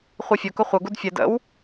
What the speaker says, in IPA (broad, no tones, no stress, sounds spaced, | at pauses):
χʷ i fʲ ʊ k ʊ χʷ ə ɡ u d fʲ ɛ d ə̰ w